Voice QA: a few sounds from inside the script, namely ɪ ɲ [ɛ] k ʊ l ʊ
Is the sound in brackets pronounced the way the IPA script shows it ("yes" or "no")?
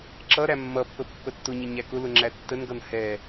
no